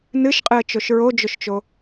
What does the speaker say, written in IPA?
nɨʃqʼɨə̯t͡ʃoʃ ɹod͡ʒoʃt͡ʃo

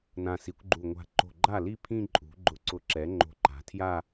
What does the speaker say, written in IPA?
nã˧˩si˩˥kʷɡ͡ǃu˧˩ ŋʷa̤˧˩ǃo̤˧˩ɡ͡ǃa˥˩ li˥˧ pʰĩ˥˧ǃʼṳ˩˥ ɡ͡ǃʊ˧˩ǀʊ˧˩ǁɛ˩˥ ŋ͡ǃo̤˧˩ǃa̤˩˥tʰja˥˧

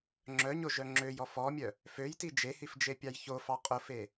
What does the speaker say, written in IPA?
ŋ͡ǁœɲoʒœ ŋ͡ǁøjɔ fɔmʲœ | føjti d͡ʒehifd͡ʒepʲɑj çofɑ qʼofe

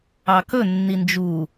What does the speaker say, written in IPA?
ɑkɵ nːind͡ʒu

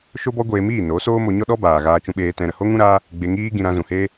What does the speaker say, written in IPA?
ʃo˦bɔ˦ɡʷeː˧miː˦˨ no˨˦soː˦ mo˧ɲɔ˦ɗɔ˦ baː˧ɣaː˦ t͡ʃũ˧ɓeː˧ tɛ̃˦ɾə˧ ho˦ŋũ˦ɾaː˦ | ɡ͡be˧ŋiː˦ɡĩ˧ ɾã˧zũ˨heː˦

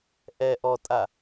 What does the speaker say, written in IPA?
ʔɛ ʔɔtʼa

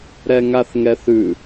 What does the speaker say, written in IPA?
ɾɛŋaθŋɛθʉ

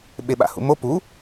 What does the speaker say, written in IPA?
ɓeɓa̰hṵmo pu

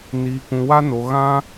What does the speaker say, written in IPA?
niː˨kũ˨wa˧ no˨ ɣã˧

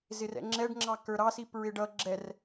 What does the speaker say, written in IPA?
zɪrɛ̰ŋ͡ǁɛɖŋ͡ǁɑ kə˞ɾɑsi pɹɪɖʌ ɡ͡ǁɛr

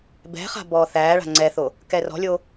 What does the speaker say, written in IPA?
bɛ̤χa̤ bɔːθæːɭa̤ ŋ͡ǀɛθo | kɛrɔ̤lʲo

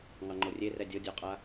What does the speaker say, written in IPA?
ŋɑŋ͡ǃorʲe rɛdʲɤ dʲɔqʼa

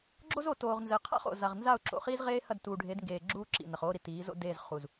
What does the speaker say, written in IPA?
ɡ͡ǁo˦zo˨toː˨ʁnzɘ˨˦ qʰa̰˦χo̰˨za˨ʁ nza˦˨ʊ̯ǁo̰˨χiː˦zʁeː˦ hɐ˦˨dtuː˨ɖʱe˨˦dŋɡeː˨ ɡ͡ǁuː˦ǁḭ˨ nɐ˨χoː˦ɾi˨ tiː˨˦zo̰˦ de˦˨zχu˨z

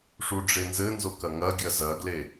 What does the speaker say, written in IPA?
ʂuɖ͡ʐenzɘnzo kɐŋɐɡʲɐ zɐɡle

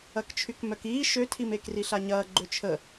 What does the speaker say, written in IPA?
ɐkt͡ʃʰykmœkiː ʃøtʰime kriɬaɲɐː ɡ͡ǃøt͡ʃʰə

